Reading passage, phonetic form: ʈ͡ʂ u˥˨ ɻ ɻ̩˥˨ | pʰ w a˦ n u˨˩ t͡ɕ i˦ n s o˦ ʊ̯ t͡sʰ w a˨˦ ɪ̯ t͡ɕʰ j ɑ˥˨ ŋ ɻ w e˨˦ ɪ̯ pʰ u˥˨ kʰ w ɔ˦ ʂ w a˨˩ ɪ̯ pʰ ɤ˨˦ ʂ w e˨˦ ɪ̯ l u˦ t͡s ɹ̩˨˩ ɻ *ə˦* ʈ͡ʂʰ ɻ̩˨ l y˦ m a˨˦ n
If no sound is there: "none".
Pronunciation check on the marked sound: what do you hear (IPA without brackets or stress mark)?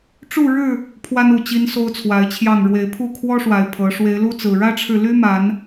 ä˦